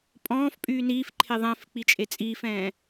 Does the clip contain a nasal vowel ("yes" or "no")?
yes